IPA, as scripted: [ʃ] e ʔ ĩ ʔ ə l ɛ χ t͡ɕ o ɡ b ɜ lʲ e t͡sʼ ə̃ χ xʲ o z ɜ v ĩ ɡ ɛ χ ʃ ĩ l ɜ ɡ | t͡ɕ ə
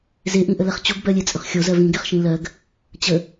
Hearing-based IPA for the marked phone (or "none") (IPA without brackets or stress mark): z